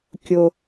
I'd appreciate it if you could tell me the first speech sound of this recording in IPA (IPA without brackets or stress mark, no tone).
kʲ